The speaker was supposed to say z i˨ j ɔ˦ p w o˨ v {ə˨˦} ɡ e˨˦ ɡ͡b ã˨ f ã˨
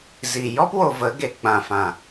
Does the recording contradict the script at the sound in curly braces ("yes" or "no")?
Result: no